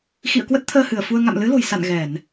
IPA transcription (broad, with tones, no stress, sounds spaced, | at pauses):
x ḭ˧˨ ə̯ k w ə˦˥ t̚ t̪ʰ əː˧ h ɨ˧˩ ə̯ f u˧ ə̯ ŋ a̰˧˨ m l ɨ˨˦ l o̤˨˩ j s a̰˧˨ n ɣ ɛ˧˩˨ n